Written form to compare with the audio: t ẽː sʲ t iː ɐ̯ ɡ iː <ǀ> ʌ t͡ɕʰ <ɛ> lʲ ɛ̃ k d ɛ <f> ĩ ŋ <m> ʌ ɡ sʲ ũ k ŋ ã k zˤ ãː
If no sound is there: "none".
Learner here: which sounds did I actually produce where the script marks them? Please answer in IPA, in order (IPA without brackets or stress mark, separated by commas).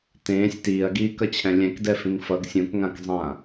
k, ɛ̃, f, f